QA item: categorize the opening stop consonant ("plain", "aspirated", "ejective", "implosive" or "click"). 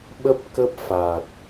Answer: implosive